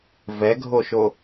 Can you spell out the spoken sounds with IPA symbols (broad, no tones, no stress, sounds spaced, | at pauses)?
v ɛ ɡʱ o ʃ o